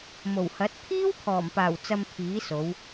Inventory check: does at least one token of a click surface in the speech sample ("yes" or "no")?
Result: no